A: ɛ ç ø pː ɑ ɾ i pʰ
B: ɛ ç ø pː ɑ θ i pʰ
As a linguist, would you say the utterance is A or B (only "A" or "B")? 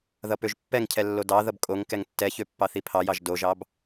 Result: B